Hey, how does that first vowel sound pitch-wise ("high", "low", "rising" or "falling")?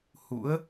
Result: rising